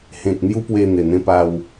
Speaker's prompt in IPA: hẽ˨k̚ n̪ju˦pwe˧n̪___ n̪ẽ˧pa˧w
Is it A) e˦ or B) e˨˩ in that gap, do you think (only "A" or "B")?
B